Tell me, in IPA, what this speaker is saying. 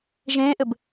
ʒẽːʔɘb

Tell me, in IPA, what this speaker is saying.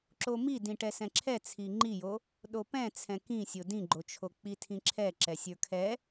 ǁomi dĩʈɛsɛ̃ǁʰɛ t͡sʰiŋ͡ǃijo | ɗopɛ̃ t͡sʰɛ̃kĩsʲo dĩɡ͡ǃot͡ʃʰo k͡pitʰĩǁʰɛ ǁɛsʲə˞kʰɛ

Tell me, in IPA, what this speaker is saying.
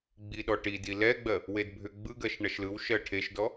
ɡ͡biɗɔʈidi lɛɡ͡bɜ | wedbʱʏ ɡ͡bɯɡɜʃ ɳɐʃlɯw ʃɜʈʰeʃdɔ

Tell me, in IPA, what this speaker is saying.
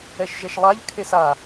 ɛʃʒɛʃlˠaʎ kʰesa

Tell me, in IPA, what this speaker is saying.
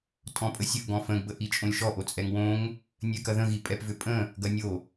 tʼɔ̃pʼəsʲəʔ ɡɔ̃fə̃ɡ bəʔit͡ʃʼõlʲʃɔ ʔot͡sʼɛŋwõŋ | nʲɛkɐðə̃ ɣipʼɛpvʏpʼə̃ | ɡɐnʲo

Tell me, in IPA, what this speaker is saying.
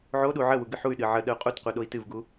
ʕoɗu ʕəwu ɡɨħuy̯ɗɨ ʕə ɗəu̯qʼutqʷɨ ɗoi̯tɨvɡu

